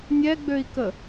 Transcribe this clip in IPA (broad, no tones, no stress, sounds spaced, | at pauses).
nʲ ɛ ɡ͡b ø i̯ k ə